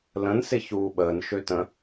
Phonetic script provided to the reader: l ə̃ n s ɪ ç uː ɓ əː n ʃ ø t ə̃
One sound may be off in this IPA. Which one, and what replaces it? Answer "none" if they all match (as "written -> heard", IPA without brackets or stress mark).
none